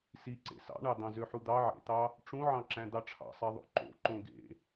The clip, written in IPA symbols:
s i ǀ ḛ s ɑ̰ ɳ ɑ d̪ ɑ̃ z ø ħ u d̪ ɑ ʕ ḛ t̪ ɑ | ʈ͡ʂ ũ ʕ ɑ̃ ǁ æ̃ d̪ ɑ ʈ͡ʂʰ ɑ̰ sˤ e ðˤ o̰ ǃ o̰ ǃ õ ɡ ḛ

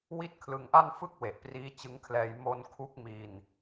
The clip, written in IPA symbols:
w i˥˩ t̚ kʰ l ɯ˧ ŋ ʔ a˥˩ n f ɯ˥˩ k̚ w e˨˩ ʔ p r iː˦˥ t͡ɕ ɯ˦˥ ŋ kʰ l ɛː˧ j m o˧ n kʰ u˦˥ k̚ m i˧ n

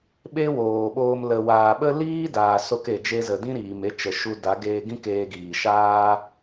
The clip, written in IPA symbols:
ɓ e˦ w oː˨ ɓ oː˧ m l ə˨ w aː˨ ɓ ə˦ l iː˦ d aː˨ s o˧ k e˨ d͡ʒ e˧ z ə˨ d ĩ˦ ɾ iː˨ m e˧ t͡ʃ ə˨ ʃ u˧ d a˨˦ ɡ eː˧ ɡ ĩ˦ k eː˧ ɡ iː˨ ʃ aː˦

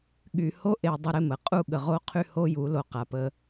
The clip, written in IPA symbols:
ɠ y˨ h o˦ ʔ e˨ dˤ ɪ˦ ɾ ɪ˦ m ə˨ qʼ u˦˨ ɠ ə˨ ʁ o˦ qʰ y˦ h o˦ j u˨˦ l o˨ q a˨ p ə˦

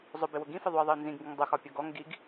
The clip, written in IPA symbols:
zˤ ʊ b ɪ w ʊ ɡ ĩ f ɪ ðˤ u ə̯ ðˤ i ʊ̯ n z ĩ ɡ ŋ ɡ ɪ ŋ dˤ ʊ x ɒ pʲ ʌ ɡ ɔ ŋ ɡ i ɡ

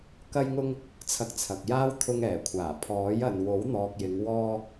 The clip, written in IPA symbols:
k ɐ˧ j ŋ ʊ˧ ŋ | t͡sʰ ɐ˧ k̚ t͡sʰ ɐ˨ k̚ j aː˥ w t̪ʰ ʊ˧ ŋ ɛː˨˩ kʷʰ aː˨˩ pʰ ɔː˨˥ j ɐ˨ n w o˨˥ w n̪ ɔː˨ k̚ j ɪ˨˧ ŋ w ɔː˧

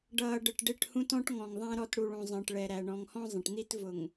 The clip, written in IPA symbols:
ɖ ʌː˨ ɖ ə˨ ʈ ɖ ɪ˦˨ ʈ h ũ˦ t ɔ̃˦ ʈ ŋ ɔ̃˨ ŋ ðˤ æ̃˦ ɾ ɔ˦˨ t ɽ u˨ ɭ ũ˨ zˤ ə̃ː˨ ʈ ɭ ɛ˨ ɾ æ˨ ɳ ɔ̃˨ ŋ h ɔ̃˦ zˤ ə̃˨ ʈ n̪ i˦ t v ʊ˨ ŋ

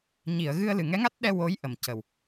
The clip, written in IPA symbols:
ɲ i˨˩˨ ə̯ ɣ ɨ˧ ə̯ l ɨ˨˩ ŋ ɛ˧˥ ŋ a˦˥ t̚ ɗ ɛ˧ w o˧˥ j ʔ ə˨˩ m c ə˨˩ w

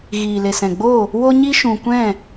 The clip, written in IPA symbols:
ɣ iː˨ l e˨ s ɛ̃˨ ɡ͡b o˦˨ | w o˦ ɲ i˦ ʃ ũ˨ kʷ ɛ̃˦˨

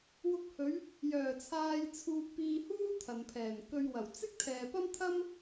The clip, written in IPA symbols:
w ʊ˧ k̚ h ɵ˨˧ ɥ | j œː˨˩ t͡sʰ aː˧ j t͡sʰ uː˧ k̚ p iː˧ h uː˥ t̪ʰ ɐ˨ n pʰ ɛː˨˩ n k ɵ˧ ɥ w ɐ˨˩ w t͡s ɪ˥ k̚ t̪ʰ ɛː˨ p ɐ˥ m t̪ʰ ɐ˥ m

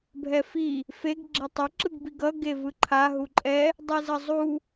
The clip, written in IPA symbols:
bʱ ɛ f i | f e ɡ ɡ͡ǁ ɛ tˤ ʌ ǁ ɯ ɡ b i ɡ ʌ ɡ e v ɯ ǃʰ a ɦ u ǃʼ ɛ | dˤ ɯ z ʌ zˤ u

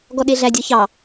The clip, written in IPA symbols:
ɡ ɔ ɗ e ɮ æ dʲ ɔ ç ɑ

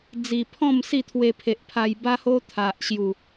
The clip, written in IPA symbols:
d͡z i˨˩ pʰ ɔ̃˥˧ m s i˥˧ t̪ʰ w e˧ pʰ e˨ ʔ pʰ a˧ j b a˦ h o˦ t̪ʰ a˨ ʔ ɕ j u˨˩

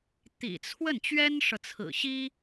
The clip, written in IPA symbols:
t̪ ḭ˨˩ t͡sʰ w ə˥˩ n t͡ɕ ɥ ɛ˥ n ʂ ɤ˨ t͡sʰ ɹ̩˨˩ ɕ i˥

